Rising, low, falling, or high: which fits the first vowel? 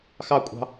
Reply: falling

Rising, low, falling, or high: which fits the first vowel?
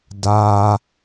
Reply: high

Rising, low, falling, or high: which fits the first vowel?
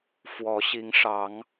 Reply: rising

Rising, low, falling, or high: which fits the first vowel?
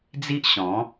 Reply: high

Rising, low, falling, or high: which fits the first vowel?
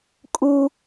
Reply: high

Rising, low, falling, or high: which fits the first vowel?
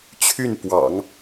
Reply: falling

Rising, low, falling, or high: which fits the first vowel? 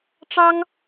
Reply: high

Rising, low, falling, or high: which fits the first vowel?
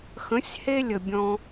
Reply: rising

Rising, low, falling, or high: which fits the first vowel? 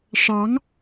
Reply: rising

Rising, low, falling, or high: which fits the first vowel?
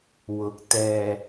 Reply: rising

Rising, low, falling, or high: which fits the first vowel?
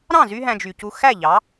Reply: falling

